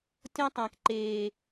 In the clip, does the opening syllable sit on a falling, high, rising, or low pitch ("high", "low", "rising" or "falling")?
high